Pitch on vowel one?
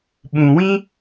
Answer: low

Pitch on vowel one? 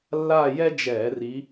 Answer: falling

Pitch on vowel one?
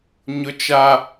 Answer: high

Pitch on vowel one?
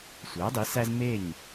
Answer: rising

